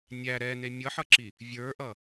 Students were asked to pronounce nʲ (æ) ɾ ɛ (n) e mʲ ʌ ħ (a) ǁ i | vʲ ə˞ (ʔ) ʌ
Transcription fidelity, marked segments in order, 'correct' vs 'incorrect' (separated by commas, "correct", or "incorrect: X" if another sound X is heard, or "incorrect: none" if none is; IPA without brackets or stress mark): correct, correct, incorrect: ʌ, correct